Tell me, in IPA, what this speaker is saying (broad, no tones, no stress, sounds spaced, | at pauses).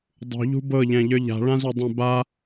dˤ ṳ ʎ ṳ b ɤ ʎ ɛ̃ ʎ ə˞ ʎ a̤ ɭ ã z ʏ dˤ ɛ̃ b a